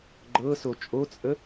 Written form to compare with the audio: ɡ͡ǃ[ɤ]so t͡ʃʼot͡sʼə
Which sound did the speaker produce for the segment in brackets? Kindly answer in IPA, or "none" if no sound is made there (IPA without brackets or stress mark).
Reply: ɤ